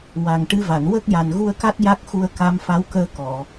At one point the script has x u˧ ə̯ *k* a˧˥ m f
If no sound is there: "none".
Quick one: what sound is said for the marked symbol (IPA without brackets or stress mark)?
k